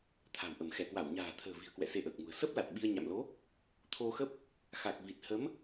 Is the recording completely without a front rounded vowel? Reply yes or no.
yes